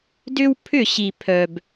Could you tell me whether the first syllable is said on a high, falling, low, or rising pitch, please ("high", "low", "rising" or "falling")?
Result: high